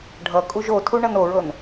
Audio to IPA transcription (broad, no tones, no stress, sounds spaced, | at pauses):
ɖʱ ʌ kʼ u ʒ o tʰ u ɳ ʌ n o ɹ ɤ n